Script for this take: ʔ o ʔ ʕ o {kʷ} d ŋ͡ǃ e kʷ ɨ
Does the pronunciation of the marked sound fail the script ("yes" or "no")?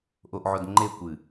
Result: yes